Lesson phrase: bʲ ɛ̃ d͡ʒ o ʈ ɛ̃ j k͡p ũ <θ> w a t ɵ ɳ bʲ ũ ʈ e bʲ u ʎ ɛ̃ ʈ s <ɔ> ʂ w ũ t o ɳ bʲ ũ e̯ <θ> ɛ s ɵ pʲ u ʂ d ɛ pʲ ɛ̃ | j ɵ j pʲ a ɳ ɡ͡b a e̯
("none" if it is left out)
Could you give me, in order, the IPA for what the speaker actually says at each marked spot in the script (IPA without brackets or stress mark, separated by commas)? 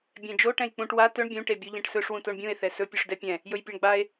ʈ, ɵ, θ